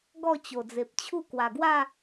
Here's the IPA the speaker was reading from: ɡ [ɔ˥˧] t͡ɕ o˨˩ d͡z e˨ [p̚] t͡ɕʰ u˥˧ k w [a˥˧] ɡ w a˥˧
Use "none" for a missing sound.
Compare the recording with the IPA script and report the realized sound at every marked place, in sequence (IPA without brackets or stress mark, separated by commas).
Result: ɔ˥˧, p̚, a˨˩